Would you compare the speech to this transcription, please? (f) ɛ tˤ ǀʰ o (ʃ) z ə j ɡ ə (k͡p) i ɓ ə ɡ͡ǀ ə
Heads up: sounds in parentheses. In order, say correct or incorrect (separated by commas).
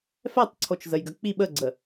correct, incorrect, correct